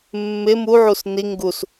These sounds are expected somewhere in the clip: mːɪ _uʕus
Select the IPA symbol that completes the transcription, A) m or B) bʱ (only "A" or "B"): A